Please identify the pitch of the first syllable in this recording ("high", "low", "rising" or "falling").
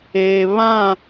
low